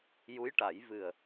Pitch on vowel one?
rising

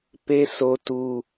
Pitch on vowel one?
high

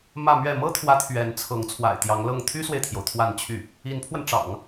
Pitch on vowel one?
falling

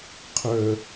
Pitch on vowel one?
low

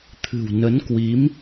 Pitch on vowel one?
low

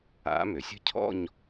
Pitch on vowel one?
rising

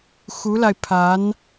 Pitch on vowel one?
rising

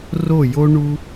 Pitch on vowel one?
falling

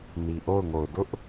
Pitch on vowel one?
low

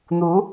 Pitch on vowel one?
rising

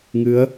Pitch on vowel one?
rising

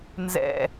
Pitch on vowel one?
falling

